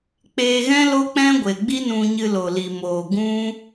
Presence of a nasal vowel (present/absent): present